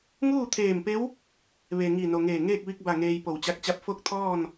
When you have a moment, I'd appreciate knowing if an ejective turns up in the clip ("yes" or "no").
no